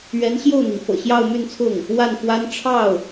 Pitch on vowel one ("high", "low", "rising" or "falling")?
rising